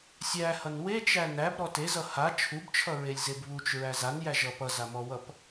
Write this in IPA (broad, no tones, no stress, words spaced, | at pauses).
sʲæhʌn wet͡ʃæ næbɾɔ tezʌ ha t͡ʃʰubt͡ʃʰʌɹelʲzeb βut͡ʃɹæ zanjæʒʌ pʌzamɔwʌp